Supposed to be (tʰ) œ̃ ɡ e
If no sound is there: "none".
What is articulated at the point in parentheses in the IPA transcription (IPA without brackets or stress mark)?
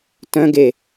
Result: t